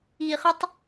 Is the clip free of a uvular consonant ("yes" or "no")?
no